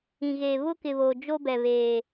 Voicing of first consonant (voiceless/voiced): voiced